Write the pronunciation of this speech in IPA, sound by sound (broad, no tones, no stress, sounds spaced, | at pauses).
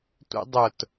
tʷ ḭ dˤ ʊ t